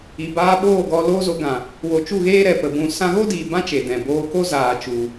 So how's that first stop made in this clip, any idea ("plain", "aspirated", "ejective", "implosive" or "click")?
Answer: plain